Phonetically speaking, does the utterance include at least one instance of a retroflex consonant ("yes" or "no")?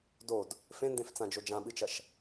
no